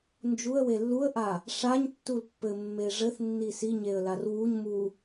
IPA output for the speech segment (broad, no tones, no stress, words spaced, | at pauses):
nd͡ʒuə̯we lːuə̯ʔa | ʂaɲtːul pːɘmːe ʐɘθnːi siɲeə̯lar wuɲ mu